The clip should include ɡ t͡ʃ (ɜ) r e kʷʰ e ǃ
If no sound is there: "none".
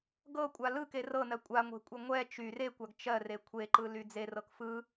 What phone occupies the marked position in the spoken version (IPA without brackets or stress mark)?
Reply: ɜ